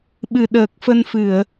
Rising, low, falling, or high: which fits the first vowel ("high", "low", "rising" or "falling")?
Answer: low